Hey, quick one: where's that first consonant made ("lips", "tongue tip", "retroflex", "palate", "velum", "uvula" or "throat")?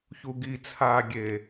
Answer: palate